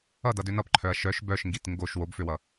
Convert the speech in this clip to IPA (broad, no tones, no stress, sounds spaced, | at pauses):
ʌ d ʌ d ø n ʌ p ǃʰ œ ɐ̯ ʃ œ ʃ b œ ʃ ŋ ɡ i t ŋ ɡ o ʃ w o b f ø w ʌ